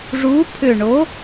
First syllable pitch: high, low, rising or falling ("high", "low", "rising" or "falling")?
rising